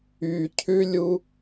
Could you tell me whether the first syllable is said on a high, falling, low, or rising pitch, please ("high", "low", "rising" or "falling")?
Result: low